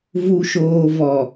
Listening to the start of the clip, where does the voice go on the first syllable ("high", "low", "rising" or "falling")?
low